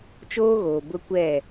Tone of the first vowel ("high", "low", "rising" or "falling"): high